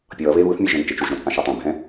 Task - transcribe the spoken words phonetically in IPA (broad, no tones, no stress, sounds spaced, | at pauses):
pʲ ʌː β e β ɯ θ mʲ e ʒ ɛ̃ n t͡ʃ e t͡ʃ u ʒ ɾ õ t͡sʼ ã ʃ ɛ tˤ ɛ̃ bʱ ɛ̃